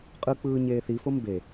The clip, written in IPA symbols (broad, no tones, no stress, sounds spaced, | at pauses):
qʼ ɯ k͡p ɯː ɲ eː θ i f o m b e